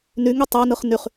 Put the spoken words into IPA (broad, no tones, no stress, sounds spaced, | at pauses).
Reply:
n y ŋ y tˤ ɑ n ɯ χ n y χ